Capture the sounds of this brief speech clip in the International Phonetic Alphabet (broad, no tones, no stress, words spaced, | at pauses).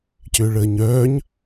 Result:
cʏːɭəːɲœːɲ